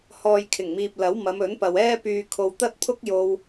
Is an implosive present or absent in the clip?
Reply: absent